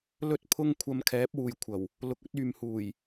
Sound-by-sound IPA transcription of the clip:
l ɵ˥ t̚ pʰ ʊ˥ ŋ kʷʰ ɐ˧ m kʰ ɛː˨˥ p̚ w uː˨ j kʷʰ ɐ˨˩ w | l ʊ˨ k̚ ɵ˨˥ t̚ yː˨ m h uː˨˩ j

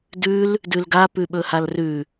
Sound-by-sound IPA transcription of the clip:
d ʉ l | d ʉ l ɡ a p ʉ ɓ ɵ h a l r ʉ

